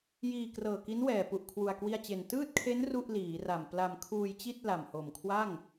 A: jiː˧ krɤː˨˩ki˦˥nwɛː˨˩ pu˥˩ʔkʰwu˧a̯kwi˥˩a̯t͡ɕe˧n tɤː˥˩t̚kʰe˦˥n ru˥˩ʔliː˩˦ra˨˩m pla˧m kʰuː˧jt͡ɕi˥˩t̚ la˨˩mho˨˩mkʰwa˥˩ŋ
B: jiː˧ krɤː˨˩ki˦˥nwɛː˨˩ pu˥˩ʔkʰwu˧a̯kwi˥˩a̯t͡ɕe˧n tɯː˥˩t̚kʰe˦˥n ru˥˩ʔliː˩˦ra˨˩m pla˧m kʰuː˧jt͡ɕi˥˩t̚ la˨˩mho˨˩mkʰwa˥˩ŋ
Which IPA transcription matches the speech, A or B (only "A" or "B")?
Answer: B